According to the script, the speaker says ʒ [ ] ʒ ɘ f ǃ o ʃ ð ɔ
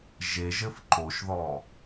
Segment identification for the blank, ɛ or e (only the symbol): e